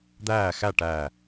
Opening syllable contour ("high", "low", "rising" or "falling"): falling